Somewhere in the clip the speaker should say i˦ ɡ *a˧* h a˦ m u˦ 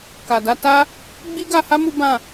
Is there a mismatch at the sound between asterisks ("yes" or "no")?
no